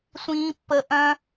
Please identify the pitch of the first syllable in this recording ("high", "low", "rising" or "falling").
high